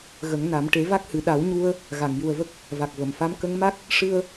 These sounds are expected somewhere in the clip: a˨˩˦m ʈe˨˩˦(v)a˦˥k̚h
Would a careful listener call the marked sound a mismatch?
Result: no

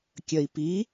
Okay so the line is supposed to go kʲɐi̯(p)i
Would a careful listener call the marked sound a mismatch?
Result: no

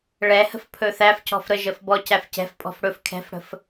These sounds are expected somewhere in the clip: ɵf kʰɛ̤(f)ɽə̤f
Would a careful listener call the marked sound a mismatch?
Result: no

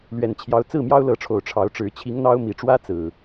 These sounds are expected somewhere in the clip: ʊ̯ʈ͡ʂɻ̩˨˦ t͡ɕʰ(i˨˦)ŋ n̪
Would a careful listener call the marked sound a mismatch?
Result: no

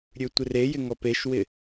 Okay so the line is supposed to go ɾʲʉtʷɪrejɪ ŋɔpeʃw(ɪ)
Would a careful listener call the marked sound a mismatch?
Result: no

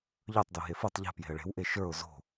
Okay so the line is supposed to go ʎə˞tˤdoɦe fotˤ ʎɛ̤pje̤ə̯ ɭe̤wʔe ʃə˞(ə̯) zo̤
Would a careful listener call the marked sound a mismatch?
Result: yes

